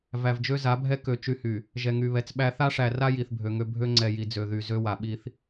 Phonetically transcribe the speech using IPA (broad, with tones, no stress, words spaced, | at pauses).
væ˨vd͡ʒø˦za˨˦bʱɛ˦ kø˨ t͡ʃy˦hy˨ | ʒɛ˨ŋy˨βɛ˨t͡sɓæ˦ θa˦ʂæ˨ ra˦ ji˨θbʱø˨ŋø˦ bʱø˦ŋ͡ǀɛ˨ji˨ d͡zø˨ðy˨ zø˦wa˨ɓi˦θ